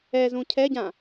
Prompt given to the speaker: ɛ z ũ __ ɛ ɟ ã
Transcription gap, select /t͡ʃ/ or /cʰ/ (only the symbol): cʰ